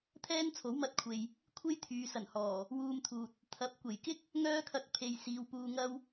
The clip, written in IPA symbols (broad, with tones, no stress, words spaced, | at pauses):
t̪ʰɛː˥nt͡sʰo˨˥wmɐ˧t̚kʷʰe˨j | kʷʰe˥jt̪ʰyː˨sɐ˨˩nhɔː˨˩ | wuː˧mt̪ʰuː˨t̚ | t̪ʰɐ˨˥p̚ kʷe˨˩jkɪ˥k̚ | ŋœː˥kʰɐ˧k̚ pʰe˧j siː˨˧wpuː˧ ŋɐ˥w